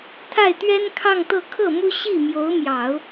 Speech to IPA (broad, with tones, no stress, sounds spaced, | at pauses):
t̪ʰ a˥˩ ɪ̯ t̪ ɥ ɛ˥ n kʰ ɑ˥˧ ŋ t̪ ɤ˥˧ kʰ ɤ˥˩ m u˥ ɕ i˥˩ m j o˧˥ ʊ̯ m j ɑ˨˩˦ ʊ̯